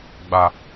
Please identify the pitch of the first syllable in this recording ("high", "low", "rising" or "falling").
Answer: low